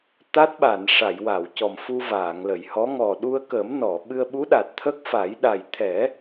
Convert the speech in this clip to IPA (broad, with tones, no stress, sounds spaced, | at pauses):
t̪ a˦˥ t̚ ɓ a˨˩˨ n ʂ a˨˩˨ j w a˨˩˨ w c ɔ˨˩ m f u˧ v aː˨˩˨ ŋ l ə˨˩˨ j h ɔ˧˥ ŋ ɔ˨˩ ɗ u˧ ə̯ k ə˨˩˦ m n ɔ˨˩˨ ɓ ɨ˧ ə̯ ɓ u˧˥ ɗ a˨˩ t̚ t̪ʰ ə˦˥ k̚ f a˨˩˦ j ɗ a˨˩ j t̪ʰ ɛ˨˩˦